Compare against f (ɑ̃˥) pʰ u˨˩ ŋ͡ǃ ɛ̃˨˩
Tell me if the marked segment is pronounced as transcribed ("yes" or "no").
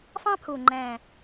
yes